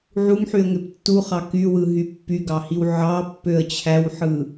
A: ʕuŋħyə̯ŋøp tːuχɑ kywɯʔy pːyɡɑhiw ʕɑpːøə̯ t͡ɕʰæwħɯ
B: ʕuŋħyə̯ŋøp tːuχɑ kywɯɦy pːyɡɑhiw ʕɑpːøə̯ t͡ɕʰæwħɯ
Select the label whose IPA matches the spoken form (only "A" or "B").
B